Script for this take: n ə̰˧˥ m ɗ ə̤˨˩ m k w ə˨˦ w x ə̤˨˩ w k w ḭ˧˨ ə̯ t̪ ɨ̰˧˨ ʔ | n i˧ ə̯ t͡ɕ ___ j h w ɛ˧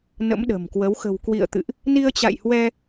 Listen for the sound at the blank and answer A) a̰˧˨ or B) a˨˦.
A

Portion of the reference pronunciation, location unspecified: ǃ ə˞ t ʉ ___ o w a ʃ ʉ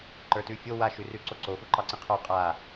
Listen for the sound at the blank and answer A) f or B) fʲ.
B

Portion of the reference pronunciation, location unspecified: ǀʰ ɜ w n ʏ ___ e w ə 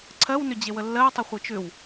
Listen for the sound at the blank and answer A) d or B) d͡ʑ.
B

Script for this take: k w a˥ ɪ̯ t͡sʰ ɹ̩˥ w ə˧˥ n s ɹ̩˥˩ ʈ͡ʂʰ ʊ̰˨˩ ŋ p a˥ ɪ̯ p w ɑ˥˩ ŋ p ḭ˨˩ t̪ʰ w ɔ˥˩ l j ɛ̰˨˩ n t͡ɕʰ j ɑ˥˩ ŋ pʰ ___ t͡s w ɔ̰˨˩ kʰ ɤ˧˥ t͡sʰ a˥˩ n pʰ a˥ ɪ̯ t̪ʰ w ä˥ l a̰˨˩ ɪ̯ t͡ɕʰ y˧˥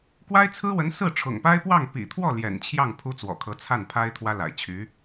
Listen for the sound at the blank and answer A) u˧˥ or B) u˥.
B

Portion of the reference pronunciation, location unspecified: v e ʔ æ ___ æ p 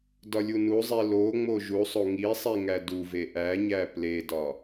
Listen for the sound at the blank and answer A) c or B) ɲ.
B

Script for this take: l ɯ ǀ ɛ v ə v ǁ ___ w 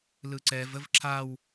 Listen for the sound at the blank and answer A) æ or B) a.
B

